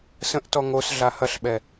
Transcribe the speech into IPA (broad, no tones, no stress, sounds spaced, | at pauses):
s ə̃ ʔ t ɔ ŋ o s ɮ a h ɐ ɬ ɓ ɛ